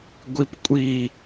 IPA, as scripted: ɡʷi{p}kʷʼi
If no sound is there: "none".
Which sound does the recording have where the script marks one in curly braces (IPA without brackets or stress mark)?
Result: p